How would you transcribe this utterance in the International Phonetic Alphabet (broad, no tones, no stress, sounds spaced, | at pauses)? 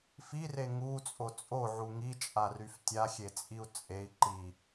f i r e ŋ u t͡sʼ o t͡sʼ o ʕ u ŋ i t͡ʃʼ a r y f tʲ a xʲ e t͡sʼ i u̯ t͡sʼ e i̯ ǃ i